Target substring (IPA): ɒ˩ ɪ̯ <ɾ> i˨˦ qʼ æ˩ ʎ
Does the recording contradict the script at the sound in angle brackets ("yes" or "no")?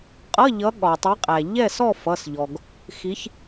yes